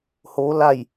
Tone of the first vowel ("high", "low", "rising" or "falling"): rising